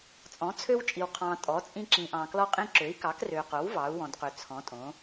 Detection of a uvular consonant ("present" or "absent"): present